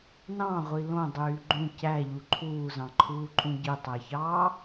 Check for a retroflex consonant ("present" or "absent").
absent